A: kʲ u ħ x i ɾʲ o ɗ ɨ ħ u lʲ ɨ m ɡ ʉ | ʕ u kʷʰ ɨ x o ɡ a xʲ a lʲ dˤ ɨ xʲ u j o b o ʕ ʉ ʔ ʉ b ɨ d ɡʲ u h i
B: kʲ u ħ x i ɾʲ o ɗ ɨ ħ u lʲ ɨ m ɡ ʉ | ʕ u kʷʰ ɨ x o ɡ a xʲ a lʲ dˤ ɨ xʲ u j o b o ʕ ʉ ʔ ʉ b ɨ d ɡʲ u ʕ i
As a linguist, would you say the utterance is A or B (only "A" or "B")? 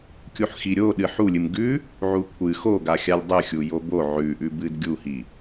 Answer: A